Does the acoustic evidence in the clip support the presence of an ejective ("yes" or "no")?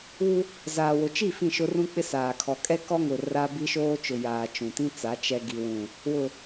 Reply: yes